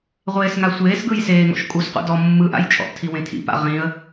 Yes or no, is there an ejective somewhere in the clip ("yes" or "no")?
yes